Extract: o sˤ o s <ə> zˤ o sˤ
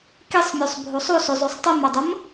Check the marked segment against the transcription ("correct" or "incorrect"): incorrect